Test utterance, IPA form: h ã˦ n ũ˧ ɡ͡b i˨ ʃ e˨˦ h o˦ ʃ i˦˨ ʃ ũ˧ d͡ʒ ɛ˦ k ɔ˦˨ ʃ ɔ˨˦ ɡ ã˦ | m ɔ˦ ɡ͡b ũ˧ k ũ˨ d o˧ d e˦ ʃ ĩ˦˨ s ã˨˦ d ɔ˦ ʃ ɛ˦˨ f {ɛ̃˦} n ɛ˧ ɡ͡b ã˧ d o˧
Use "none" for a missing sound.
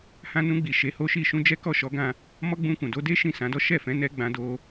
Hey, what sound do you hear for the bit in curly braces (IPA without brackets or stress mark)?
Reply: ɛ̃˨˦